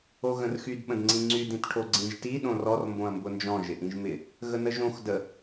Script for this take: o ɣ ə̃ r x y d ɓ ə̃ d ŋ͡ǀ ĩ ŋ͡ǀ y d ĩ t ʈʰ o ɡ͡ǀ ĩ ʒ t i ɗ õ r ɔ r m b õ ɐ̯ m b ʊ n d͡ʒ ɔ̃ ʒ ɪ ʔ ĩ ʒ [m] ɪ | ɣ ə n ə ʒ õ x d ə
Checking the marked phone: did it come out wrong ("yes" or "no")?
no